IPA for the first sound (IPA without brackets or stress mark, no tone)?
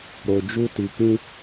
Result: ɾ